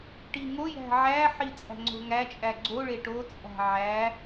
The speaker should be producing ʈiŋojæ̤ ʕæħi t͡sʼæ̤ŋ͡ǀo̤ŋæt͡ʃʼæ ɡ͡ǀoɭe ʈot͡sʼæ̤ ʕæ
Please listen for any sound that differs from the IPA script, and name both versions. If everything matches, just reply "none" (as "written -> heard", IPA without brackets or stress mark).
none